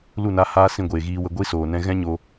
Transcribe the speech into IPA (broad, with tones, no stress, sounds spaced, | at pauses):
l u˦˨ n a˧ h aː˧ s ĩ˦˨ ɡʷ eː˨ ɣ iː˧ w ə˧ ɡʷ i˦ s oː˨ n ɛ̃˧ ɣ ɛ̃˦ ɲ o˧